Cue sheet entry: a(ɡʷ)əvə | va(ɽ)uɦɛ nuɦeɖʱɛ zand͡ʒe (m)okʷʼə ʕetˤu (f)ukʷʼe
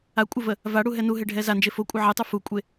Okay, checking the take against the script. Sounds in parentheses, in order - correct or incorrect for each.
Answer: incorrect: kʷʼ, correct, incorrect: f, correct

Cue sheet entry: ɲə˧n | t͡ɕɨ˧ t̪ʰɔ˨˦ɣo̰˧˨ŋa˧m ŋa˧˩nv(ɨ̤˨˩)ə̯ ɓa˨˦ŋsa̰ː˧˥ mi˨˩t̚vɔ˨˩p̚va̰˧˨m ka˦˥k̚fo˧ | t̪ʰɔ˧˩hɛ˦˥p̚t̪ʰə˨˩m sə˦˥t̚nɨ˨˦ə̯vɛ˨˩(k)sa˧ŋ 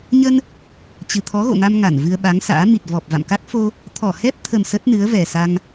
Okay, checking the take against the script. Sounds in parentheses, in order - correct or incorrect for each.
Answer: incorrect: ɨ˧, incorrect: none

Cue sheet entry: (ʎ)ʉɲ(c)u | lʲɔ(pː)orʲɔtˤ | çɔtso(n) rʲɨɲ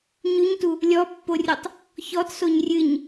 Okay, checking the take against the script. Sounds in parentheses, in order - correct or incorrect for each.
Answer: incorrect: ɲ, incorrect: t, correct, incorrect: ɲ

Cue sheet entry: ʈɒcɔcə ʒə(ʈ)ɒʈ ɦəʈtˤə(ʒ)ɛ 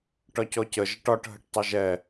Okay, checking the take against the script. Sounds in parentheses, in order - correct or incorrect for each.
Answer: correct, correct

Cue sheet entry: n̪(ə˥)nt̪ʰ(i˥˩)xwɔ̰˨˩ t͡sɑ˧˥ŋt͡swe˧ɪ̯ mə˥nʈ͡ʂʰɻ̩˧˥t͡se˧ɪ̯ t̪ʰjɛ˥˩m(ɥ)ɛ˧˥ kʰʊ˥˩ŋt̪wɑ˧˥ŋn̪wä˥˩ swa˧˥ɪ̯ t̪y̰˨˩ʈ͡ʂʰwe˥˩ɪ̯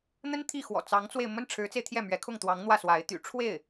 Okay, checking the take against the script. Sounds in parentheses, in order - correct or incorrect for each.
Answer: correct, correct, correct

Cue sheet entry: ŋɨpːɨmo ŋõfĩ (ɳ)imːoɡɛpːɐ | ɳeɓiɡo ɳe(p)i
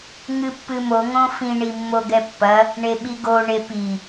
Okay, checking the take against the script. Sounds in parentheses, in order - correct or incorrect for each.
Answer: correct, correct

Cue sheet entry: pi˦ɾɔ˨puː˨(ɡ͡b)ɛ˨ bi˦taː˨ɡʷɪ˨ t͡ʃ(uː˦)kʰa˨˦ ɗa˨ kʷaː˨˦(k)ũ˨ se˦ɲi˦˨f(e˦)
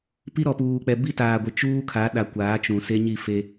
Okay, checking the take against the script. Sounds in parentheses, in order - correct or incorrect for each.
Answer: incorrect: k͡p, correct, incorrect: t͡ʃ, correct

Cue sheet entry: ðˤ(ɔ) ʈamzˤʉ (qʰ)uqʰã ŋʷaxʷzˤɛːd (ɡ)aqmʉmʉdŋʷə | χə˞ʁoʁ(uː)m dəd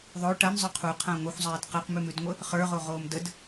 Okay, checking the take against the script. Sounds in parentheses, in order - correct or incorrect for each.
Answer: incorrect: o, correct, incorrect: q, incorrect: oː

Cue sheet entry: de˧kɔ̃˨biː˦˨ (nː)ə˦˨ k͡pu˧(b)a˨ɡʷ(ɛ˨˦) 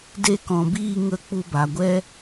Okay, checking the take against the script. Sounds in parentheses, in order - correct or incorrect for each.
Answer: incorrect: ŋ, correct, incorrect: ɛ˦

